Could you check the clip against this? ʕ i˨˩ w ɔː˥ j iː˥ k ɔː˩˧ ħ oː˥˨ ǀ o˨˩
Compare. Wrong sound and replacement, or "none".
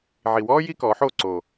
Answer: none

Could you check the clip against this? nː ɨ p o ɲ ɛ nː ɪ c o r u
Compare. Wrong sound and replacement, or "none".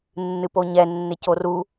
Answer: none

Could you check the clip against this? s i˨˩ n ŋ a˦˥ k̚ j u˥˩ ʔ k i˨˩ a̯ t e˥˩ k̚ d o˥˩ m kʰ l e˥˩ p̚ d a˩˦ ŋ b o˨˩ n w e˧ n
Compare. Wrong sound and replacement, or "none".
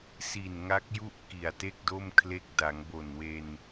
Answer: p̚ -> k̚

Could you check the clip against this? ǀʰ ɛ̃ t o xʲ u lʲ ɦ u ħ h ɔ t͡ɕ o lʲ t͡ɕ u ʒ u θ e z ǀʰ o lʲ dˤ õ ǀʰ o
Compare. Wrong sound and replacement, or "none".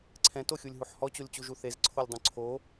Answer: none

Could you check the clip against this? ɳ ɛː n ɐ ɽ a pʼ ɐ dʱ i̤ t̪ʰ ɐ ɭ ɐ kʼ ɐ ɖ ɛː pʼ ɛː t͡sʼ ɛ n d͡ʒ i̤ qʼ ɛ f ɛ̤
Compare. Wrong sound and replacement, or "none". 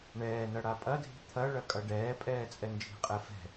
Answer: none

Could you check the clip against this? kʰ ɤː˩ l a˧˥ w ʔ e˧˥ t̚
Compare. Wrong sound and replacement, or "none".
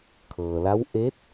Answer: none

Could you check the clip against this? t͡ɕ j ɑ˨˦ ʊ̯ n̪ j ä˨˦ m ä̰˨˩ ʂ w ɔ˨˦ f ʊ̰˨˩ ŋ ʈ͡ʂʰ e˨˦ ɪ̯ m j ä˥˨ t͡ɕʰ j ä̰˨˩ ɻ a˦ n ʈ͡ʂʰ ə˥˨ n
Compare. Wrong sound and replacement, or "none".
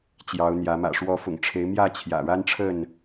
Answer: none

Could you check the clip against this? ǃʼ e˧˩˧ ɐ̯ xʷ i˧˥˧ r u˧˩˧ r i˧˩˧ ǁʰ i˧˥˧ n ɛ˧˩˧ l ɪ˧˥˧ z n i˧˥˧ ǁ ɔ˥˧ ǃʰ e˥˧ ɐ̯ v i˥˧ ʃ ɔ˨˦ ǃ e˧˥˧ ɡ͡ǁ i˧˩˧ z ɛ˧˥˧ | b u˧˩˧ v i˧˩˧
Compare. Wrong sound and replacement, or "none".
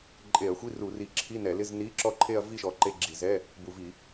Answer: none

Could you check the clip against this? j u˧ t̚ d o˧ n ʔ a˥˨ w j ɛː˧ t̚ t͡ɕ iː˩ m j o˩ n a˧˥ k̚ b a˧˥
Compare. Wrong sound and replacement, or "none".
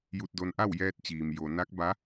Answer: none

